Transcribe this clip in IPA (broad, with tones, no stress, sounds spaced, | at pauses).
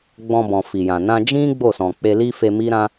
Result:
ɡ͡b ɔ̃˧ b ɔ̃˨ f i˨ j ã˨ n ã˧ d͡ʒ ĩ˦ ɡ͡b o˦˨ s ɔ̃˨ k͡p e˧ l i˧ f e˧ m i˦ ɾ ã˦